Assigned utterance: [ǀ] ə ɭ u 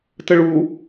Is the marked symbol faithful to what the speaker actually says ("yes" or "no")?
no